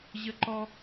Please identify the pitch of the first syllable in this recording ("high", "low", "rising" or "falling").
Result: high